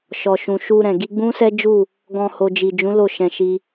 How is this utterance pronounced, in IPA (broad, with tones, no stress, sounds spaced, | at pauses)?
ʃ ɔ˨ ʃ ũ˨ ʃ u˧ ɾ ɛ̃˨ ɡ i˧ ɡ͡b ũ˦ s ɛ˦ d͡ʒ u˦˨ | ɡ ɔ̃˧ h o˨ d͡ʒ i˨ d͡ʒ ũ˨˦ l o˦˨ ʃ ɛ̃˧ ʃ i˦